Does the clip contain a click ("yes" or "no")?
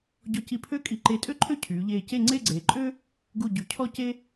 yes